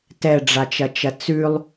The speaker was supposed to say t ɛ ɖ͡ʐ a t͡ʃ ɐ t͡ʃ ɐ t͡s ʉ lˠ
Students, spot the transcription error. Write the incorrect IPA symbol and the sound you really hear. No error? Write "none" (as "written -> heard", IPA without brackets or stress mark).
none